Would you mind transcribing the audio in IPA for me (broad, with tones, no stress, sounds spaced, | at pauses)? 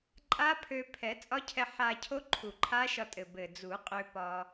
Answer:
ǃʼ a˦˥ pʰ ø˧ pʰ ɛ˨˩˦ t͡sʼ ɒ˦˥ cʰ ɛ˧ ħ a˧ cʰ o˦˥ ǃʰ u˨˩ ǃʰ a˦˥ ʃ ɒ˧ tʼ ɘ˨˩ b ɘ˨˩ d͡z u˨˩˦ qʼ ø˧ p ɒ˧